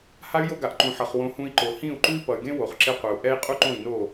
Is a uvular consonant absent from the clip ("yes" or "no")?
no